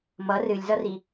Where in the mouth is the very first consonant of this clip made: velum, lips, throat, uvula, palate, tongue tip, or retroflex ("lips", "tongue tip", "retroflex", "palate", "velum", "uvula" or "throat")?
lips